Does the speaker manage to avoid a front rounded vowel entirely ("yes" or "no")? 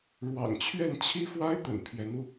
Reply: yes